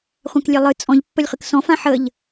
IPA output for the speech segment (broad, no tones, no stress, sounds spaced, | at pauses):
χʷ ã k lʲ e lˠ ɨ t͡sʼ ɔ̃ ʎ pː ə lʲ χ ɨ k s ɔ̃ f ã ħ ə ʎ